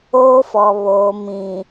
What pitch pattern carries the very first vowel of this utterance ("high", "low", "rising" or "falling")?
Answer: high